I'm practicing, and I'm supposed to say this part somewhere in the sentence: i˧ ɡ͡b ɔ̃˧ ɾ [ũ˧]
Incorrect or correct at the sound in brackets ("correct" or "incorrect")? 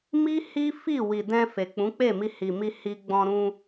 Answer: correct